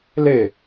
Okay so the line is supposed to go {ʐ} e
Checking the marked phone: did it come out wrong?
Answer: yes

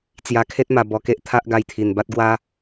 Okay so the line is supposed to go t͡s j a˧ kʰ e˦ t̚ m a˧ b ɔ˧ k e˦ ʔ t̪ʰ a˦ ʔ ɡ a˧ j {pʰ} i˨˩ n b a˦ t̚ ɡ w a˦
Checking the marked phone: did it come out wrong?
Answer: yes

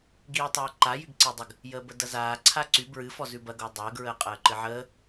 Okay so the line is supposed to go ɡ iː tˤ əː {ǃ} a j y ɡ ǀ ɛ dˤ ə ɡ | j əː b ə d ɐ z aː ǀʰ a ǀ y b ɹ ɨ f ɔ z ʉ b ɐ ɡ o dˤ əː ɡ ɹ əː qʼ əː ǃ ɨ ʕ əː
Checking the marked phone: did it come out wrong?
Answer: no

